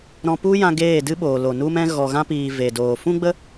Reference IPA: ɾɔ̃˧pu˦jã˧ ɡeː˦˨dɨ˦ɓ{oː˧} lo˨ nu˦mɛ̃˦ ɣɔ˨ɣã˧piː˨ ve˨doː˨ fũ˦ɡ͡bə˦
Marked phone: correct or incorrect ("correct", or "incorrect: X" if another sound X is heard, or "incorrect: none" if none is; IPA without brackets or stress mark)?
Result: incorrect: oː˨